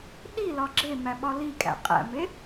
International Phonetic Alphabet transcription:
ɗ i l ɒ ɡ͡ǁ e m æ ɓ ɒ l i kʼ æ̰ qʼ æ̰ m e

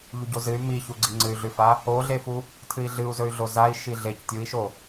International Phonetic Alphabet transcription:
ʎ u ɟ o z ɨ y̯ m i ç u ɡ͡ǀ i ŋ͡ǀ ɨ y̯ ɮ ʉ f a | o ɮ e f u | tʰ ɨ i̯ ɮ ɨ u̯ z ɵ y̯ ɮ o z a i̯ ʃ i ɮ e c tʲ u i̯ ʃ o

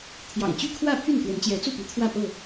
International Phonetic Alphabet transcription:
t̪ʰ j ɑ̰˨˩ ŋ t͡ɕ y˥˨ kʰ w ä˥˨ pʰ y˥˨ n k w ə˨˦ n t͡ɕ j ɛ˨˦ t͡s u˥˨ p i˨˦ t̪ʰ w ä˥˨ p ɤ˥˨

